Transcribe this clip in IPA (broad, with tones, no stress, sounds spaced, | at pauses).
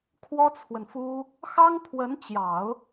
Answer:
kʰ w ɔ˥ t͡sʰ w ə˨ n f u˥ | x ɑ˥ ŋ pʰ w ə˧˥ n t͡ɕ j ɑ˨˩˦ ʊ̯